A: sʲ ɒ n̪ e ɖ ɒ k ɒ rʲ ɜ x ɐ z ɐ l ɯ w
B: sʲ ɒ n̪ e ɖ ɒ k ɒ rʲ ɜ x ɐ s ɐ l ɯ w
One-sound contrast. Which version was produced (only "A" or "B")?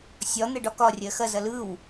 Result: A